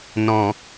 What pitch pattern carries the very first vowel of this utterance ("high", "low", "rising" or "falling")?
low